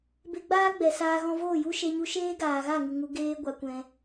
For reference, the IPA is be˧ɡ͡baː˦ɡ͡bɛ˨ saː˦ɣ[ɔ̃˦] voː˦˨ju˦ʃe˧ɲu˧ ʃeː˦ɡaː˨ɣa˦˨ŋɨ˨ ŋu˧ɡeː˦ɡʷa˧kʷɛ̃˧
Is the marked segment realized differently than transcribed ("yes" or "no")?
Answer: no